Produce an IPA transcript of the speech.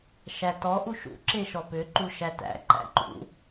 ʃætɔ ʔuʃṵ ǁeʃɔpʏ ǃuʃætæ̰ ǃæ̰ǃṵ

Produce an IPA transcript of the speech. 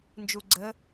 nd͡ʒuɡ͡ǀə

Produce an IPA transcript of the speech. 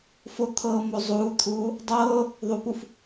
fot̪ʰɤːmo zˤuːt̪ʰuː | dˤɤː | ðˤupuf

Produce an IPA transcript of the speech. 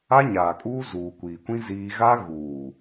a˦ɲaː˨kʼuː˦ zuː˨kʷiː˨kʷĩ˦ ziː˦ ɣa˦ɣuː˨

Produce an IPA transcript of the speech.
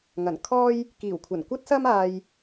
ŋɐ˨˩nkʰɔː˥j | kiː˨˩wkʷʰɐ˨˩nkʷɐ˥t̚sɐ˥m aː˧j

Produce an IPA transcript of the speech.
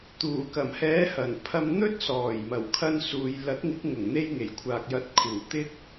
t̪uː˨˩kɐ˨˩mhɛː˨˥hɐ˨˩n pʰɐ˧mn̪ɵ˥t̚sɔː˨˩j mɐ˨˩wkʰɐ˧nsuː˨j lɐ˨˥t̚ŋɪ˨˥k̚ ŋʊ˨˩ŋ n̪e˧jŋe˨˩jkʷʰaː˨k̚jɐ˨˥t̚ kʰuː˨˩ t̪ɪ˥k̚

